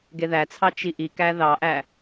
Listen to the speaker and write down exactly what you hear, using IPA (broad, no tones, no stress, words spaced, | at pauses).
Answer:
ɡeðæt͡sʰɑ t͡ʃiʔikæ ðɑʔæ